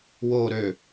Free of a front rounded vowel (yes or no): no